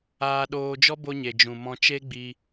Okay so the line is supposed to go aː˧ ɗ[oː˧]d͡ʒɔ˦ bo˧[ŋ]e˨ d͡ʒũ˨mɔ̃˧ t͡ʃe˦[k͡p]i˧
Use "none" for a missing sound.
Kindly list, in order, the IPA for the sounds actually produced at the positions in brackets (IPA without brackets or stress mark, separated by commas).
oː˧, ɲ, ɡ͡b